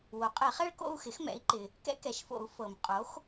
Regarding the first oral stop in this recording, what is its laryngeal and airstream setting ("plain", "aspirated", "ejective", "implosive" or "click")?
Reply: ejective